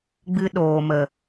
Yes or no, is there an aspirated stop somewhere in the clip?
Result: no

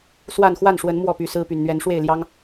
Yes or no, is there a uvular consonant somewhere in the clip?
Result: no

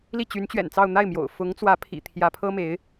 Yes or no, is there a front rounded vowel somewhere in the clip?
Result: yes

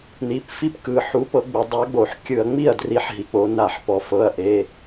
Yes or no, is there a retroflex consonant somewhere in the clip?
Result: no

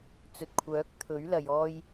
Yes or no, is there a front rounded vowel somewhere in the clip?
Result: yes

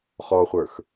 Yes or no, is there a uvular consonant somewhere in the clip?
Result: yes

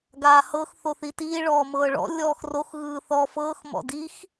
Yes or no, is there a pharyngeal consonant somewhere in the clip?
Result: no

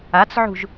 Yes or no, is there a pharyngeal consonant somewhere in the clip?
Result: yes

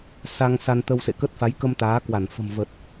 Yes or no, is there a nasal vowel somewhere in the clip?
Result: no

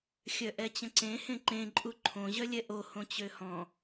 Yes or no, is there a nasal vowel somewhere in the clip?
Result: yes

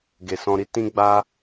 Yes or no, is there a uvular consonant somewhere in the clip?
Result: no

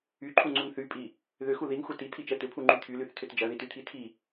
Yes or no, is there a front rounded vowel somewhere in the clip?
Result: yes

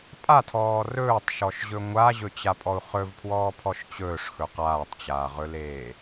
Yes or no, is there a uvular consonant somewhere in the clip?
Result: yes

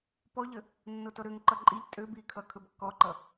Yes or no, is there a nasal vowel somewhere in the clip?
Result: no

